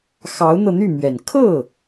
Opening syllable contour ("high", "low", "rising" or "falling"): rising